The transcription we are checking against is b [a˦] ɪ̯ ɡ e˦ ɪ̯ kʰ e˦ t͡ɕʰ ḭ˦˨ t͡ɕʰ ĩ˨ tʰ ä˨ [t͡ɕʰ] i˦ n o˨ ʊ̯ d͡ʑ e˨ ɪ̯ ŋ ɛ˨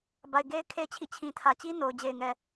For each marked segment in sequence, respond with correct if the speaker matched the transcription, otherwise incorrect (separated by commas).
incorrect, incorrect